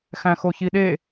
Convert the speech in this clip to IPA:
x æ̃ x o ç i ɗ e

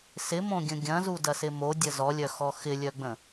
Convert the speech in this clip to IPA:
s ɪ m õ ɡʲ ə̃ ɡʲ ɐ̃ z u d ɐ s ɪ m o dʲ ə z ɔ lʲ œ x ɔ x ɪ lʲ œ ɡ͡b ə̃

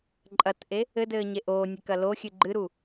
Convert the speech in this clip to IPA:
ǃʼ ɐ t ʔ e | ɘ d ɘː ɲ e ʔ oː nʲ e k ɐ l o xʲ ɨ ɡ͡ǃ ɨ ɾ u

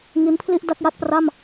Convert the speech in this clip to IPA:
ŋ i˦˥ n pʰ l i˥˩ ʔ d a˥˩ k̚ j a˥˩ t̚ p r a˥˩ m

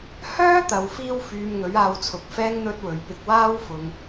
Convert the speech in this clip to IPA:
h œː˥ t̪ ɐ˨ w f iː˧ w f yː˨ m ŋ ɵ˨˥ ɥ aː˧ w t͡sʰ ʊ˨ k̚ f ɛː˥ ŋ n̪ ɵ˥ t̚ w ɵ˨ ɥ p ɪ˧ k̚ w aː˥ w f ʊ˨ ŋ

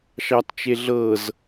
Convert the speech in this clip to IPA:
ʃ ɑ t t͡ʃ e ɮ ɤ z

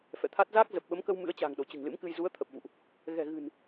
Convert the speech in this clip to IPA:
f ɛ̰˧˨ t̪ʰ a˦˥ t̚ z aː˦˥ k̚ z ə˨˩ p̚ ɓ ə˨˦ m k ə˧ w m ɨ̰˧˥ ə̯ t͡ɕ a̤ː˨˩ ŋ ɗ o˧˩ t͡ɕ ɨ̤˨˩ ŋ l ɨ̰˧˥ m k ɨ˧ j z u˨˦ ə̯ t̪ʰ ə˨˩ p̚ v ṵ˧˨ ʔ | ɣ ɛ̤˨˩ ɣ ɨ̤˨˩ n

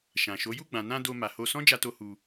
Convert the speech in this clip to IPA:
ʃ ã˨ ʃ o˨˦ j u˦˨ ɡ͡b ã˨ n ã˧ d o˧ m a˨ h o˧ s ɔ̃˦ d͡ʒ a˧ t o˧ h u˧

